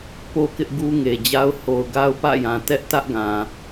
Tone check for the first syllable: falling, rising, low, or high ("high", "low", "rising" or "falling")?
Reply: high